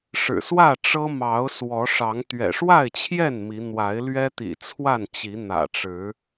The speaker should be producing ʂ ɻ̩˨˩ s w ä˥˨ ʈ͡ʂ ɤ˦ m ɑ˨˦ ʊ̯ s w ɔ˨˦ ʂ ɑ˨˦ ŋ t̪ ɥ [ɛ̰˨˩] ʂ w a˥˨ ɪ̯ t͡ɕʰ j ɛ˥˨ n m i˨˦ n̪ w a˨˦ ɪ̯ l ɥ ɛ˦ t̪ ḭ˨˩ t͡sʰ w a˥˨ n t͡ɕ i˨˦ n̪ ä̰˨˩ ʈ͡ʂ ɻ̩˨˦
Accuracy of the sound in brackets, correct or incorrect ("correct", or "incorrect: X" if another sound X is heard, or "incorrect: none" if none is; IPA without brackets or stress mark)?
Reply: correct